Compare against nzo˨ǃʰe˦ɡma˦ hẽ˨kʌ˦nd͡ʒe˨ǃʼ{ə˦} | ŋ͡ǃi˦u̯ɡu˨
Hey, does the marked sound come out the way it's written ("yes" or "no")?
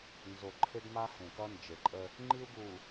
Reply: yes